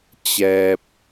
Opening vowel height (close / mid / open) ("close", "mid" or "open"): mid